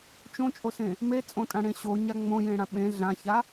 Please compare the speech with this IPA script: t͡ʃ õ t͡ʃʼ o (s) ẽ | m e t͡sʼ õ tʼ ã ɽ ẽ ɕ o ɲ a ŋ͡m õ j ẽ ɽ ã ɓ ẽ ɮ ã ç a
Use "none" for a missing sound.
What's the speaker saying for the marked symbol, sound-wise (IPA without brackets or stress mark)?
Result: s